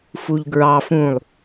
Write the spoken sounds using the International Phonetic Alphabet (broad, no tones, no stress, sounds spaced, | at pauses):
f u ʎ ɡ ɹ ɑ f ũ lˠ